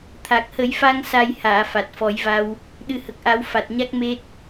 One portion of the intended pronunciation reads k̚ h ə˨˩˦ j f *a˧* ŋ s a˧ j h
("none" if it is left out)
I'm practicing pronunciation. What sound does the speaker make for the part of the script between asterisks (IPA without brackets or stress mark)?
a˧